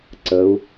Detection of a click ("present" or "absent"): present